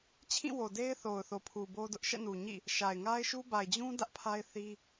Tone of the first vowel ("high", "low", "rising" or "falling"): falling